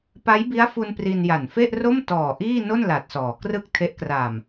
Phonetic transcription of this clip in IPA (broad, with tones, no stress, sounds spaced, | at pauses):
p a˦˥ j b i˦˥ a̯ f u˧ n p r i˧ n j a˨˩ n f e˥˩ ʔ r o˥˩ m t ɔː˨˩ ʔ iː˥˩ n o˥˩ n l a˨˩ t̚ s ɔː˩˦ k r ɯ˥˩ k̚ tʰ e˦˥ ʔ k r a˨˩ m